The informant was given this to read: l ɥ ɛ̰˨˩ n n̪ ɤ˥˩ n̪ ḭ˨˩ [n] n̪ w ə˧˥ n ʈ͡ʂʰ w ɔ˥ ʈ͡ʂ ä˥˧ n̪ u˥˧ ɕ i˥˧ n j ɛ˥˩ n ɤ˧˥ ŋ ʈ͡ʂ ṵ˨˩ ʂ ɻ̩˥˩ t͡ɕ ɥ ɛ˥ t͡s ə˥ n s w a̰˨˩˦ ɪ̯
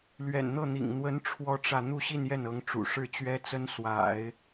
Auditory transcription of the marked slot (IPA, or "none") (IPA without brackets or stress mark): ŋ